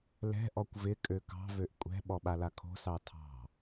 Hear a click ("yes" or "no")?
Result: no